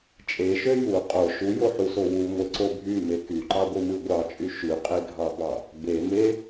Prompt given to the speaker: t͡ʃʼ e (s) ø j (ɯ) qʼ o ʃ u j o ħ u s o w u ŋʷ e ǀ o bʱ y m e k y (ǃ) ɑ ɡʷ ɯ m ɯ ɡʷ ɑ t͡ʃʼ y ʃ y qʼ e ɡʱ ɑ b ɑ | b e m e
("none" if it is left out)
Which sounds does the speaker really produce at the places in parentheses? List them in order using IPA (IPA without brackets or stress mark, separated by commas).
ʃ, u, ǃ